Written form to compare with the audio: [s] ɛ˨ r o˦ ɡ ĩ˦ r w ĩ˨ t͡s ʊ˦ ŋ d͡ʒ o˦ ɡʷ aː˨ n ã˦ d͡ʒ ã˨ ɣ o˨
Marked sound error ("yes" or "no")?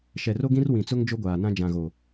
yes